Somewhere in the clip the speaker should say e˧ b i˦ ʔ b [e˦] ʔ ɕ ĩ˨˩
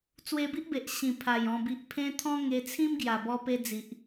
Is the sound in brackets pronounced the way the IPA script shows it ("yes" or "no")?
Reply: no